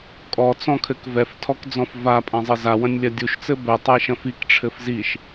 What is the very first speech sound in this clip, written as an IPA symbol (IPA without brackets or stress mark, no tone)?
kʼ